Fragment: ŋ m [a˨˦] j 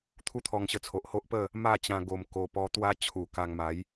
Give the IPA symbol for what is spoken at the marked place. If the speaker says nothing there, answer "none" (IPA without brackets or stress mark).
a˨˦